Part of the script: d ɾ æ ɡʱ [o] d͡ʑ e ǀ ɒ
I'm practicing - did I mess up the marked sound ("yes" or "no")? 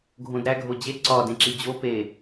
no